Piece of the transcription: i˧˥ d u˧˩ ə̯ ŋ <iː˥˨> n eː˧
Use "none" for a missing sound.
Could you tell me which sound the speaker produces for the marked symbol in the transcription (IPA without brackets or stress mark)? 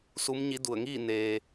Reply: iː˥˨